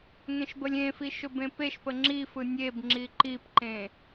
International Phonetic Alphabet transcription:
ŋẽʃbəlʲẽfi ʃɵbẽpeʃpə ŋ͡ǁi fɯnʲebŋ͡ǁi ǃipǃẽ

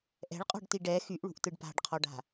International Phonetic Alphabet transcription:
ʔɛ̤ɭqʼɔ̤ɖti ɖɛ xyʔɭṳʔtɯɖ pa̤ɖqʰɔɖa̤

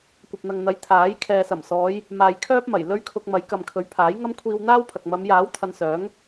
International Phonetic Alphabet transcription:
kʷɐ˨p̚n̪ɐ˨ŋ n̪ɐ˨˥j t̪ʰaː˨˥j kʰɛː˨sɐ˨˩msɔː˨˧j | maː˨jkʰœː˥p̚mɐ˨˩j lɵ˥ɥkʰʊ˧k̚ mɐ˨˥jkɐ˨mkʰɵ˨˥ɥ pʰaː˨˥jŋɐ˥m kʷʰiː˧wn̪aː˥wpʰɐ˨k̚ mɐ˨˧mjaː˨˥wt̪ʰɐ˨n sœː˨˥ŋ

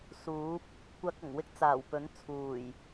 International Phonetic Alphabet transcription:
suː˨˥p̚ | kʷɐ˧k̚ɐ˨˩ŋ wɪ˥k̚t͡saː˨˩wpɵ˨˥n t͡sʰuː˨˩j

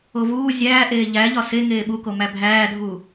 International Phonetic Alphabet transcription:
ovuː zʲæːʔeː ʎæʎɒ se ŋeːɓuko mæbʱæːdʱuː

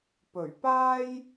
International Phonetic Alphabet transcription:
pɵ˨˩ɥpaː˥j

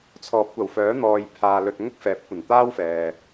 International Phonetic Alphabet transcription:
t͡sʰɔː˨˥p̚kʷɐ˨˩wfœː˨˥n̪ɔː˨j pʰaː˨lɵ˧t̚ ŋʊ˥k̚fɛː˨˥p̚kʷɐ˨˩nt̪aː˥w fɛː˨

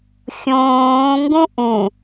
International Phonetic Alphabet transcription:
xʲõː ŋɡũʔũ

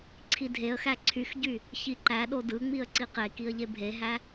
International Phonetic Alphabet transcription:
ǀʰidʱeə̯xæ ǀʰyxɟy | çiǃæɗo dɯŋ͡miə̯ ǀiqekiə̯ ʎebʱeɦæ

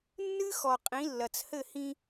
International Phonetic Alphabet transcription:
nːɨ˦ xɔ˨qʼĩ˨˦ lːɐ˨t͡shɘ˦˨hĩ˦

